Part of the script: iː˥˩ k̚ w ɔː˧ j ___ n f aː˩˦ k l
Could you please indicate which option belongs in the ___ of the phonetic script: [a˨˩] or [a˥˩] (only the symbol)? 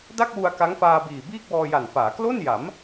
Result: a˨˩